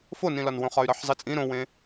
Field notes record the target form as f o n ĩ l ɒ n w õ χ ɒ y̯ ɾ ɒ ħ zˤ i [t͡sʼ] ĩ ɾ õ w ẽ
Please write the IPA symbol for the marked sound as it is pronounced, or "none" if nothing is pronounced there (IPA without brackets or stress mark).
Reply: t͡sʼ